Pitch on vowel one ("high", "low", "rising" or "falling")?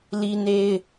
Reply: high